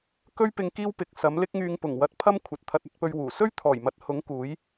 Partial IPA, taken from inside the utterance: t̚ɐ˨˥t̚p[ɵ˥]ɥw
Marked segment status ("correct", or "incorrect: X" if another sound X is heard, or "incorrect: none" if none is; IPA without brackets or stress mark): incorrect: ɵ˧